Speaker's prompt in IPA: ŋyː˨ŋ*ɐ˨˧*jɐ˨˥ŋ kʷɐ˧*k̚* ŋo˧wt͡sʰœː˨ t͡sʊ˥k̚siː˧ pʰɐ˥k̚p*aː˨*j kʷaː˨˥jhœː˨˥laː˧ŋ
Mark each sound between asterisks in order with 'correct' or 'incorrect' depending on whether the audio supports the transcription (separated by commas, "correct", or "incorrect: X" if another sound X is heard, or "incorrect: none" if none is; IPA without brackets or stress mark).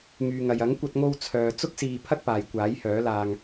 incorrect: ɐ˨, incorrect: t̚, correct